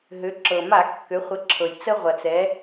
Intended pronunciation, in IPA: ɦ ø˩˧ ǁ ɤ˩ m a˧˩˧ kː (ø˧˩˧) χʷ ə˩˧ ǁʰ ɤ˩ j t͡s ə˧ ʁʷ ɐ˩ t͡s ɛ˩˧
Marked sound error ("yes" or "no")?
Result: yes